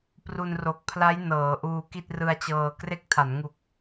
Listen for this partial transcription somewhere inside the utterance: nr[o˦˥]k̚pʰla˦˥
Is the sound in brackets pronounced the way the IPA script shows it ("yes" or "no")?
no